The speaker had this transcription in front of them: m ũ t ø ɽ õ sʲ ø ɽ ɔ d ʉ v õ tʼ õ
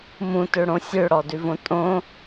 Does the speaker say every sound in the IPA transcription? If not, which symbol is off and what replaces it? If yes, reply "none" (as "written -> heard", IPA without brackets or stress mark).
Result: none